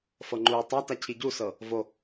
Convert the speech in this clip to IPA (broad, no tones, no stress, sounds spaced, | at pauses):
f ɤ ŋ͡ǃ uː tˤ a t a cʰ i ɟ u s ɤ | v o